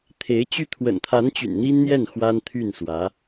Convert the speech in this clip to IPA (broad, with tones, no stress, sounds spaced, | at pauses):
t̪ʰ e˧˥ ɪ̯ t͡ɕ y˥˩ t̪ʰ w ə̰˨˩ n t̪ʰ a˧˥ n t͡ɕ y̰˨˩ n n̪ i˥ n n̪ j ɛ˥˩ n x w a˥ n t̪ʰ y˥˩ n s w ä˧˥